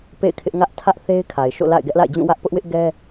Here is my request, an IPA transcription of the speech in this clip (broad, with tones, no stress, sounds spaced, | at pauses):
p ḛ˦˨ ɪ̯ kʰ ɪ˦ ʔ ŋ ä˦ ʔ tʰ ä˦ ʔ θ e˦ ɪ̯ kʰ a˨ ɪ̯ ʃ o̰˦˨ l a̰˦˨ ɪ̯ ɡ ɛ˦ ʔ l a̰˦˨ ɪ̯ d͡ʑ ũ˦˨ w ä˦ ʔ p ʊ˦ ʔ w ɪ˦ ʔ ɡ ɛ˦